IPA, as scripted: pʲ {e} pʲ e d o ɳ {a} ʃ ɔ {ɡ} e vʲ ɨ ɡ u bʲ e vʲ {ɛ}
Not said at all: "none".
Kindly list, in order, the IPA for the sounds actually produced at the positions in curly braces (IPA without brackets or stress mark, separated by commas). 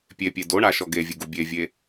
e, a, ɡ, e